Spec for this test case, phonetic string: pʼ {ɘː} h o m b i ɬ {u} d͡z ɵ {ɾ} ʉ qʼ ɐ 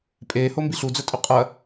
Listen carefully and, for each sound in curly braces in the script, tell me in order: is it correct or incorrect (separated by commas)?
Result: incorrect, correct, incorrect